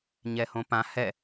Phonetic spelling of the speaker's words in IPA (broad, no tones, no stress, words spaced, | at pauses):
ɲɛhõpã hɛ